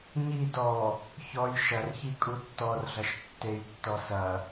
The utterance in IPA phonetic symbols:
ɲid ɔ | çɔj ʃɐrçi kʼutːɔrɮɐʃ tːejtːɔ sɐ

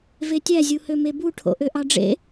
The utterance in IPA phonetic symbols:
vetʲæ zʲuhømebu ʈʰo̰ʔøʔɑɖ͡ʐḛ

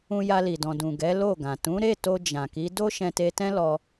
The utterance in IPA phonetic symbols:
ũ˧ja˧li˨dɔ̃˨ dũ˨ɡɛ˨˦ lo˦˨ɡã˨ tũ˨˦ɾe˦˨to˧ d͡ʒã˨ki˨˦ do˦ ʃɛ̃˧te˧tɛ̃˦lɔ˧

